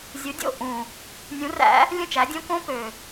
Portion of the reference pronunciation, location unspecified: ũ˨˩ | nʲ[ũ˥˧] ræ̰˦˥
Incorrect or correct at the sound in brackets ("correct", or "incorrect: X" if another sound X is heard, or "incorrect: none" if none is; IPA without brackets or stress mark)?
incorrect: ũ˨˦